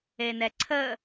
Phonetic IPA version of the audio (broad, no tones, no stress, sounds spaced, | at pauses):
e n ɛ ǀʰ ə